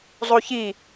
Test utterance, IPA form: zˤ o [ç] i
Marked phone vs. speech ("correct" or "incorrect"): correct